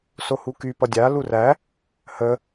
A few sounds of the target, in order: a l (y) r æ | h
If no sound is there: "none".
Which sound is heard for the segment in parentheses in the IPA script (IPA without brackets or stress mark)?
u